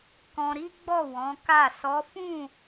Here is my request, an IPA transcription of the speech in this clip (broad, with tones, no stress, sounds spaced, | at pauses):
k ɔ̃˧ ɾ i˦ ɡ͡b ɔ˦˨ w ɔ̃˨˦ k a˦˨ s ɔ˨˦ f ũ˦˨